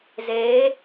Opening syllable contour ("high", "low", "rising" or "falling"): rising